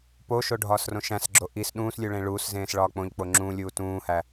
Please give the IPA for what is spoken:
p o ʃ o ɖʱ ɒː s r õ ʃ æ̃ s ɡ͡ǁ o ʔ i s ɗ ũː s lʲ u ɭ ẽ ɭ uː s z ẽː s ɭ ɒː k͡p õ ʎ k͡p o ŋ͡ǁ ũː lʲ uː t ũː h æ

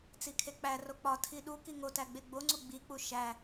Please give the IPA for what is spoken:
t͡s i kʰ e k͡p æ r o k͡p ɒ tʰ i ɗ u k i ŋ o t æ ɡ͡b e ɡ͡b o ŋ͡ǀ u ɡ͡b i k͡p u ʃ æ

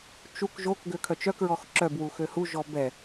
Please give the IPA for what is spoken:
t͡ʃ u k ʒ o k ɡ ø kʰ œ t͡ʃ œ k ɹ ɔ x ǁ œ b w u x ø h u ʒ ɔ b ɛ

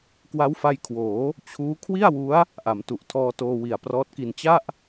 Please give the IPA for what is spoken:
k w a˦˥ w f a˧ j kʰ w oː˩˦ | t͡ɕʰ uː˦˥ kʰ w i˥˩ a̯ w u˦˥ a̯ | ʔ a˩˦ m t u˨˩ ʔ tʰ ɔː˧ t oː˧ w i˨˩ a̯ p r ɔː˦˥ t̚ k i˧ n t͡ɕ a˥˩ ʔ

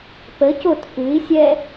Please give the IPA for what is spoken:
p ə c o t f ʉ i̯ sʲ ɛ

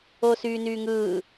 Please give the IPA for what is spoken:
oː s yː n yː ŋ ɯː

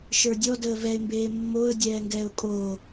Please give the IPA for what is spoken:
ʃ ə˞ dʲ ɔ d əː v ɛ ɪ̯ m b eː mː o ə̯ dʲ ɛː ŋ ɡ ɛː ʊ̯ kʼ oː

